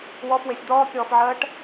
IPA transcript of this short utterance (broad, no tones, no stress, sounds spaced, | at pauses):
w ɔ f w e sʲ d̪ ɔː kʲ ɔː f ʕ ɜː ʈ